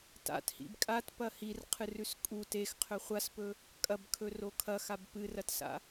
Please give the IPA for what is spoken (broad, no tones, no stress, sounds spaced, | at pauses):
t a̰ t h ḭ b kʼ a t p ɐ h i r qʰ ɨ r ʉ s kʼ u t e x qʰ ɵ χʷ a s p ɵ | kʼ ɐ b kʰ ɵ r o kʰ ɐ x a b p ɨ r ɐ t s a̰